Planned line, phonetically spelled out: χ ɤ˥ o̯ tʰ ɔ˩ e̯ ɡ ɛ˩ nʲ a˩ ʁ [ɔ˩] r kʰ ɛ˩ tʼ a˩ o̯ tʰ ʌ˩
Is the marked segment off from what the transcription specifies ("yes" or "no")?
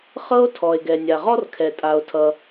yes